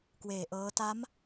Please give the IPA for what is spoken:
k w eː˨˩ ʔ ɤː˦˥ t a˦˥ m

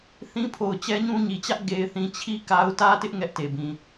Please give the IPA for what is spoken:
θ ĩ˦ pʰ o˨ ʊ̯ t͡ɕ ɛ˦ ɲ ũ˦ ɲ i˨ t͡ɕ ä˦ ʔ ɡ e˨ ɪ̯ θ ĩ˨ t͡ɕʰ i˦ k a˦ ʊ̯ t ä˦ t ɪ˦ ʔ ŋ ɛ˦ ʔ t e˨ b ĩ˨

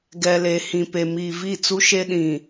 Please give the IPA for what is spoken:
ɡ ɛ˨ l e˨ h ĩ˨ p e˨ m iː˨ v i˦˨ t͡s u˦ ʃ e˦ ɗ ĩ˨

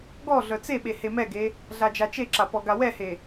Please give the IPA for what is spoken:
ɡ ɔ ɮ œ t͡s e ɓ e h e m ɛ ɡ e | ɮ a d͡ʒ a t͡ʃ e ǁ a p ɔ ɡ a w ɛ h e

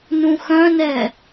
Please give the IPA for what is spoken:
n ũ x œ̃ n ɛ

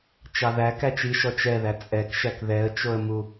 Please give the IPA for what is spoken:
t͡ʃ ɑ ð æ k æ t͡ʃ i ʃ ɔ t͡ʃ ɛ ð æ t͡sʼ ɛ k ʃ æ k ð ɛ ə̯ t͡ʃ o ə̯ m u

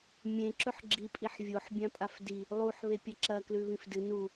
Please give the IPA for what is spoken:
mʲ ẽ ǁ ɵ ħ ɡ͡ǁ i pʼ i ħ vʲ o ħ bʲ ã pʼ a f d i | lˠ u ħ β e pʲ ɐ ǁ ɐ k l ʉ β ĩ f d ɨ n u

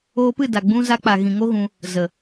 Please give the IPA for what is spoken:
oː˧ p ɨ˦˨ d a˨ ɡ͡b ũ˧ z a˧ k͡p a˨ ɣ ĩ˨ ŋ o˦ ɣ ũ˧ | z ə˨

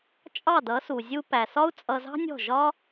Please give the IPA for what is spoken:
t͡ʃʼ ɑ˦˨ d ʌ˨˦ s u˨ zʲ u˧ p æ˨ s ɒ˦ u̯ t͡sʼ ʌ˧ z ɑ̤˦ nʲ ɔ̤˦˨ ʒ ɒ˦

